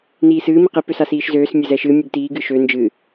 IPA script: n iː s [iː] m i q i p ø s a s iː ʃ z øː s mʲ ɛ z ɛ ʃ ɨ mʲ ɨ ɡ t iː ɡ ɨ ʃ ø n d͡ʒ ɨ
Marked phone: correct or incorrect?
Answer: incorrect